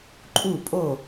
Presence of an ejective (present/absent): present